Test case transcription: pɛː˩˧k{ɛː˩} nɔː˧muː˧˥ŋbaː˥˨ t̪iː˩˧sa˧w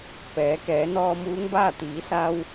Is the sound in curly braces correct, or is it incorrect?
incorrect